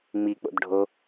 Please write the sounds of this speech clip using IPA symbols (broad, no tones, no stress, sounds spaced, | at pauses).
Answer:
ŋ͡m i k͡p o̰ d ɖʱ o